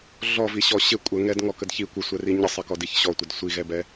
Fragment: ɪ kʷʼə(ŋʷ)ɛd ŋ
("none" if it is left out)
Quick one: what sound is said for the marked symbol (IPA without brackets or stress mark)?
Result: ŋ